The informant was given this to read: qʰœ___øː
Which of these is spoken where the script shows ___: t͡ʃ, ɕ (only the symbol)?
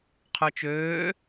t͡ʃ